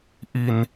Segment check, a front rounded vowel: absent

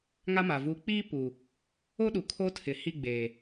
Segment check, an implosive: present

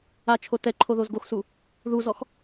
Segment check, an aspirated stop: present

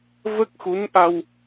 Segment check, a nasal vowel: absent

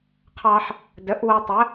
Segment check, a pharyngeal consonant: present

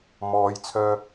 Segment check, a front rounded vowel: present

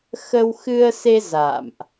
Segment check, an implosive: absent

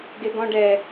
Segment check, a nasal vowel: present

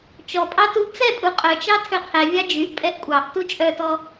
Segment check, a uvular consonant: present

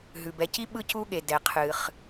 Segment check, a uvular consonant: present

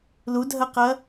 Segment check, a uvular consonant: present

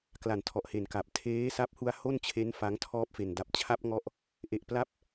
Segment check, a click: absent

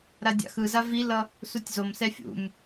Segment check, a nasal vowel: absent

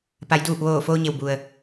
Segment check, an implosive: absent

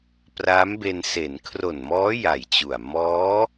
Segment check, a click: absent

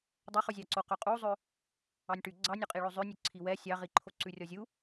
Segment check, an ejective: present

